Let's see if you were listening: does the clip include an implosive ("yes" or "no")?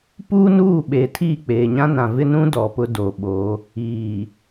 yes